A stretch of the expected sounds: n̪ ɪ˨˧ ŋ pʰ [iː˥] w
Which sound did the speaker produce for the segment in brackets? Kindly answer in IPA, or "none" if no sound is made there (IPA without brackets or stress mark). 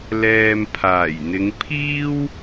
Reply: iː˥